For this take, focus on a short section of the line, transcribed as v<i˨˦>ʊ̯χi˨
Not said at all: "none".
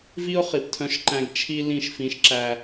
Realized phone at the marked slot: i˦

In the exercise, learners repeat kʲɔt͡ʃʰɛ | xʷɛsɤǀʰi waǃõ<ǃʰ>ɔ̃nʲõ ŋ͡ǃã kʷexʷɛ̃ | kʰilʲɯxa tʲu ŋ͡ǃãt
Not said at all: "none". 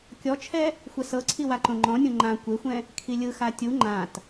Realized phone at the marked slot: ŋ͡ǃ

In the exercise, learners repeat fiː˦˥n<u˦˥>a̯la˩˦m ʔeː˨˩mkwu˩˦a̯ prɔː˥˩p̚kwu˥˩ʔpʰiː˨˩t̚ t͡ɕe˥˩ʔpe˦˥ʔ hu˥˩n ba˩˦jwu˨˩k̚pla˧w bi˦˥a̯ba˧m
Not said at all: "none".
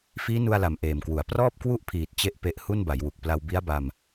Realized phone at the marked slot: u˧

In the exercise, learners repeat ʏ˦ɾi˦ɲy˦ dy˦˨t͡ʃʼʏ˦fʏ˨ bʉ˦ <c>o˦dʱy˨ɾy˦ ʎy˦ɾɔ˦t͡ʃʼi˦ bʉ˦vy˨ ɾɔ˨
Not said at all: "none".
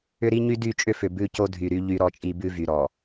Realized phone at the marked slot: c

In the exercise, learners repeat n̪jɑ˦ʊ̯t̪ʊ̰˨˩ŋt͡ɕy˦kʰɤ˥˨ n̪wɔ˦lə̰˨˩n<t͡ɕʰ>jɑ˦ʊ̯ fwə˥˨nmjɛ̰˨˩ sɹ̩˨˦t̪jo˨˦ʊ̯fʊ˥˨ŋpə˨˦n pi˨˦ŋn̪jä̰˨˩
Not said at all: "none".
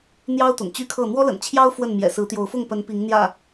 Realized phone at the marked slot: t͡ɕʰ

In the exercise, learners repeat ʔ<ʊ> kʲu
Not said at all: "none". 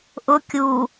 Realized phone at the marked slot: ʊ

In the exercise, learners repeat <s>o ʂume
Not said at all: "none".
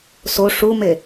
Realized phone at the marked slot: s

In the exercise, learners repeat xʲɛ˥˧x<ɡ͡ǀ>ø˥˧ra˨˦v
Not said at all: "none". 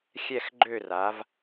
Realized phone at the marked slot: ɡ͡ǃ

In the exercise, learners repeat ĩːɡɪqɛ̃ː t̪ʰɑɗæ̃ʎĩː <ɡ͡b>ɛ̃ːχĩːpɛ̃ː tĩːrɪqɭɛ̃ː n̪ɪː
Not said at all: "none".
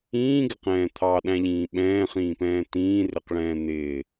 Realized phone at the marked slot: ɓ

